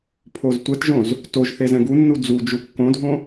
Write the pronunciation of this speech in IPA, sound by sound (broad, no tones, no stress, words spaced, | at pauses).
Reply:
pʰoztʷɛtʒõz | toʒθe zɛ̃ɡunːu d͡zud͡ʒu kːõdʱõ